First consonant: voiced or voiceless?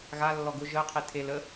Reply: voiced